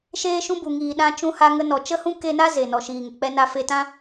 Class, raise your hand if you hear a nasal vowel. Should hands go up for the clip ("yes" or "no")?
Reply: yes